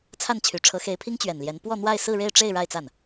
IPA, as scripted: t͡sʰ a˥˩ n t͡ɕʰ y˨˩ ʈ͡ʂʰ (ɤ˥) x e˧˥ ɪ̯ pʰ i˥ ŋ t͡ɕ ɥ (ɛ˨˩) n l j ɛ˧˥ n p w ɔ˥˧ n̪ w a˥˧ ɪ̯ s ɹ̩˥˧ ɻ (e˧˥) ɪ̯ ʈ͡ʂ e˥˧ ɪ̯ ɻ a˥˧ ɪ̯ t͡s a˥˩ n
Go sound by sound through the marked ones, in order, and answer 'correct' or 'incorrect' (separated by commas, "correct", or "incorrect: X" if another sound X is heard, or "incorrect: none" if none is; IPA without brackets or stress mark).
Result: incorrect: ɤ˧˥, correct, incorrect: e˥˧